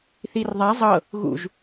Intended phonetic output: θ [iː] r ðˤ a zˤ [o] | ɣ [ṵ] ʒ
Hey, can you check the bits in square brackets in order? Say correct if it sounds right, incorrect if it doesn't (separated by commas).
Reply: incorrect, incorrect, correct